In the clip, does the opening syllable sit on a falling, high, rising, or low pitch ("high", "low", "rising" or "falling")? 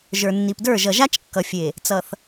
low